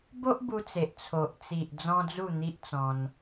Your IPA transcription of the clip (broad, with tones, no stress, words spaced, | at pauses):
bo˦ʔbu˧t͡se˨ʔ t͡sʰo˨ʔt͡si˨ʔ d͡zɔ̃˦d͡zu˥˧n̪i˦ʔt͡sɔ̃˧n